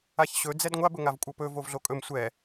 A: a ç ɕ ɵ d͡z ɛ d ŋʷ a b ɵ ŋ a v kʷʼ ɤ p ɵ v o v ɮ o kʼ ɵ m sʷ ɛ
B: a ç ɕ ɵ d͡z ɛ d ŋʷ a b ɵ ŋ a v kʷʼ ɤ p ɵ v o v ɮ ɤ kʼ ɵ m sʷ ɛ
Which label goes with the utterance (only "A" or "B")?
A